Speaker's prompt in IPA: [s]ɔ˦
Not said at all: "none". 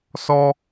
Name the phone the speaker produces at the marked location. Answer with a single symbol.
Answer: s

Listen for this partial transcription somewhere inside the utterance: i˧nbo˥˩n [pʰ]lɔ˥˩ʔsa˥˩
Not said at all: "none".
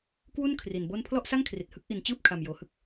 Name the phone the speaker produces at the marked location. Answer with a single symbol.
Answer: pʰ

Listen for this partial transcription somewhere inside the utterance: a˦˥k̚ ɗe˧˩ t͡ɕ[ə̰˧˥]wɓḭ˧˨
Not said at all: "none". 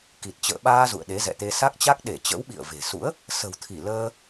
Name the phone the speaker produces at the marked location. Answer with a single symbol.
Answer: ə̰˧˥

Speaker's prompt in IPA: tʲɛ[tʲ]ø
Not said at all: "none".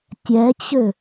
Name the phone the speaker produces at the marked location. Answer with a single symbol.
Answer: t͡ɕ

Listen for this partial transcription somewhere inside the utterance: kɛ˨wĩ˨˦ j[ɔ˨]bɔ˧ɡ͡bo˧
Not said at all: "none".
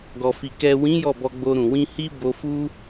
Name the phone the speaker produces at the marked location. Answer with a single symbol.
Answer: ɔ˦˨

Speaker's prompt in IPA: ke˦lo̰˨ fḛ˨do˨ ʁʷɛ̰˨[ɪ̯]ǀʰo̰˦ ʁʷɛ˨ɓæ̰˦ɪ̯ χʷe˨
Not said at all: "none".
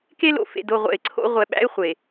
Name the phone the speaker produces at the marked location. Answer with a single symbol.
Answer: ɪ̯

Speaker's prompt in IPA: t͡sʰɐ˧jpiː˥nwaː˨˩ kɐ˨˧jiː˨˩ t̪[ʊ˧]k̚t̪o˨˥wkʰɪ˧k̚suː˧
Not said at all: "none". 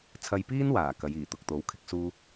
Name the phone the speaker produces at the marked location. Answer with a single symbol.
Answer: ʊ˨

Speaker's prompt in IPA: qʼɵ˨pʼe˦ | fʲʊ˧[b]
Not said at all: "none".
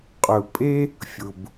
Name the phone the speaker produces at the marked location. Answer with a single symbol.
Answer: b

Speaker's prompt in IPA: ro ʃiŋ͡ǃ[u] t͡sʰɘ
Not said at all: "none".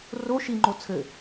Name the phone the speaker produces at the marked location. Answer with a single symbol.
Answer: o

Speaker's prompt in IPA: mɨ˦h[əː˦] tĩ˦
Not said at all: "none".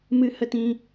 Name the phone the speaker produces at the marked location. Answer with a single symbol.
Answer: ə˦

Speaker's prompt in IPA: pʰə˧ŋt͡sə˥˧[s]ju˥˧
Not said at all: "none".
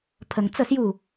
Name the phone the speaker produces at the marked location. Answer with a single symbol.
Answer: s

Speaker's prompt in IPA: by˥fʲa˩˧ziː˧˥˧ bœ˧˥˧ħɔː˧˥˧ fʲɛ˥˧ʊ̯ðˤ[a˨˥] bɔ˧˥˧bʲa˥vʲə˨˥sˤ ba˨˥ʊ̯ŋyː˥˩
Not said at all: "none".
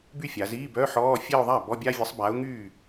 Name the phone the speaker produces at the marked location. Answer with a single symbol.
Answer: a˥˩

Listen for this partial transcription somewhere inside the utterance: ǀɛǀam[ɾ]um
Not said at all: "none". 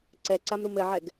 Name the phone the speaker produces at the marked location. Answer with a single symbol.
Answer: ɾ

